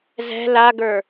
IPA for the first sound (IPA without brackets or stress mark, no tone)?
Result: z